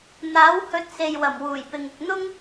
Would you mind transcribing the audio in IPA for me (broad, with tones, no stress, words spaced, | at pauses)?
n̪aː˨˥w hɵ˨˥t̚ se˨jwɐ˨˩mwuː˨˩j pɪ˨ŋɪ˨k̚ n̪ʊ˥ŋ